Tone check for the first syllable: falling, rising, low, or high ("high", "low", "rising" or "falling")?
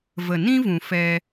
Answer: low